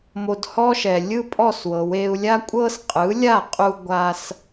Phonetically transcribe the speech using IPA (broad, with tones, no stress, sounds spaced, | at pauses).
m o˧ d h ɔ˥ ʃ ɛ˩ lʲ ɯ˥ pʼ ɔ˥˩ s w ɤ˩ w e˧ u̯ lʲ a˥ kʷʼ ɤ˥ s qʼ ɯ˩˥ lʲ a˥˩ qʼ u˧ ɡʷ a˧ s